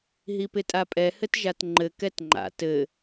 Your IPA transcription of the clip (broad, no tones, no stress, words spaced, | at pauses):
ɦipɪtʼapʼɛ hɘtʒatŋ͡ǃɘ kɛtŋ͡ǃa̰ tɘ